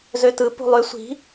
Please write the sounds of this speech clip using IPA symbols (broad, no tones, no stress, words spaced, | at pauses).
zøtɯ pṳlˠø sʷi̤